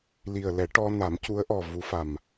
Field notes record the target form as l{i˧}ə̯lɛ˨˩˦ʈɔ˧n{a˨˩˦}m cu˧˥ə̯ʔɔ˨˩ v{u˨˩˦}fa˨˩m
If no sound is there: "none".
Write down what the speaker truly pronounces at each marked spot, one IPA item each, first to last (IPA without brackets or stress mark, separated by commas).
i˨˩, a˨˩˦, u˧˥